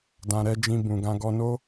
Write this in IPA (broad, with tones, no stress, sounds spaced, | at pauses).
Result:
d ã˨ ɾ ɛ˨˦ d͡ʒ ĩ˧ b ũ˨ ɡ ã˧ ɡ ɔ˧ n o˦